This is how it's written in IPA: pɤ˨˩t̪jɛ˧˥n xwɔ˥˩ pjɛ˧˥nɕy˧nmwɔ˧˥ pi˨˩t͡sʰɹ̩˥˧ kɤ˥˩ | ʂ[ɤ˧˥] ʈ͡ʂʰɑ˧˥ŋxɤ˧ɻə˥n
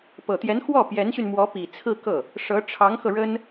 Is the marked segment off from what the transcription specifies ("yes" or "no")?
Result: no